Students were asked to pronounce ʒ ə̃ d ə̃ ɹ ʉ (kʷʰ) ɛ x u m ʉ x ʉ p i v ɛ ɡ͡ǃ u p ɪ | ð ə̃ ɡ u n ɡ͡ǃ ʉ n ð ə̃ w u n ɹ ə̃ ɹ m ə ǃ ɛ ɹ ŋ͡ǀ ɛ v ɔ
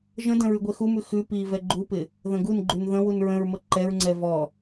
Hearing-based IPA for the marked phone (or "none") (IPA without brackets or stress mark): ɡʷ